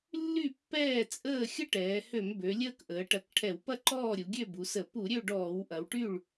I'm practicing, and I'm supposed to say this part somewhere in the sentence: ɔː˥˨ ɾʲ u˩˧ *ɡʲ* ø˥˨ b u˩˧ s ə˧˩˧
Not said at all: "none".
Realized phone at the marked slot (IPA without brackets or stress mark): ɡʲ